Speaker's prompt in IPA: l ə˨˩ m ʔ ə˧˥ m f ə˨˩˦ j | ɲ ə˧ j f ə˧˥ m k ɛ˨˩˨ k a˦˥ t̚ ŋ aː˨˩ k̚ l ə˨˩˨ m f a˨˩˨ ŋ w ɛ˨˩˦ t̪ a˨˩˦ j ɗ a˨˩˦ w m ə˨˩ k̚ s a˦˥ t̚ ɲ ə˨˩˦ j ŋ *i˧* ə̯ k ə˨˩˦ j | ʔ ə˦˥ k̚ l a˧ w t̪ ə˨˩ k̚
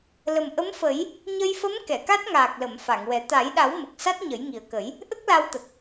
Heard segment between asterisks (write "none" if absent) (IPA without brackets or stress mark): i˨˩